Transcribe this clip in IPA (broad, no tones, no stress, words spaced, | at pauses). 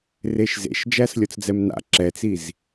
reʃzḛʃ d͡ʒæslʲɔt͡sd͡zɛmna̰ ǁɛt͡siz